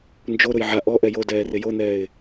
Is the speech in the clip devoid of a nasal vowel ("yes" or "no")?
yes